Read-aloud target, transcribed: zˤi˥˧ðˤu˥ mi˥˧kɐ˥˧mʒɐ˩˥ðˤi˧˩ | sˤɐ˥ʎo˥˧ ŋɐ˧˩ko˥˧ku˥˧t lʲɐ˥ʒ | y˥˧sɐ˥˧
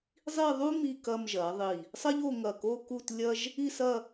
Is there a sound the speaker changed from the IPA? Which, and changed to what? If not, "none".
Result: y˥˧ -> i˥˧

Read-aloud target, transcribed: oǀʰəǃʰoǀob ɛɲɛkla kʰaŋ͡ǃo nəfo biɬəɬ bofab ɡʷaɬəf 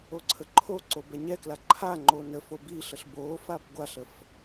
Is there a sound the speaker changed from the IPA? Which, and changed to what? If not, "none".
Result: kʰ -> ǃʰ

